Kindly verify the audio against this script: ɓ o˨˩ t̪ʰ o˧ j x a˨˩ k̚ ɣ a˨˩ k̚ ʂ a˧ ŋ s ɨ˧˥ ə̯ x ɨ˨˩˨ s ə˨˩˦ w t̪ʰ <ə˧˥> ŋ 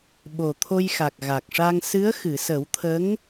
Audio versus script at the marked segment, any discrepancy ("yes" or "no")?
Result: no